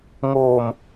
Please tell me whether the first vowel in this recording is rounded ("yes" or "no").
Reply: yes